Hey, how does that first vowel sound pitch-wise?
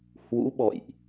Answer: rising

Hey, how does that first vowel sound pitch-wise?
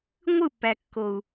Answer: falling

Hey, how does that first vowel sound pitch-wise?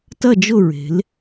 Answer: falling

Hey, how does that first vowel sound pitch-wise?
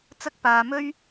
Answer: high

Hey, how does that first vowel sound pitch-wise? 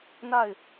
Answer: falling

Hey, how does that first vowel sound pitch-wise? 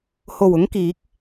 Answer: low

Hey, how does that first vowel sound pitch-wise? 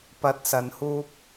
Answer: rising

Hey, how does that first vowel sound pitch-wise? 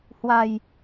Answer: low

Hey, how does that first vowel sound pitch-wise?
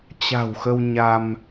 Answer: low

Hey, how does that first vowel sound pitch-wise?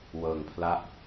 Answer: low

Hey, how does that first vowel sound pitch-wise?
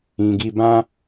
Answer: low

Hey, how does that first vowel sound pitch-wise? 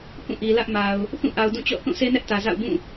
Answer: falling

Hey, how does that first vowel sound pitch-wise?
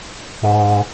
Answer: low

